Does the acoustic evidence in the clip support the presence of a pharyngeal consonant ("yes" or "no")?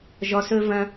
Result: no